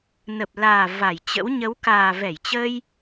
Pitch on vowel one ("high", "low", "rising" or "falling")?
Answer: low